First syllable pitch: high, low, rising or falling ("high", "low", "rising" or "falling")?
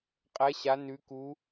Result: rising